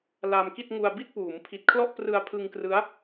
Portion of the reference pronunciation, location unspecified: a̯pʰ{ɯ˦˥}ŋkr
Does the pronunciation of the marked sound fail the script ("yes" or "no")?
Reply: yes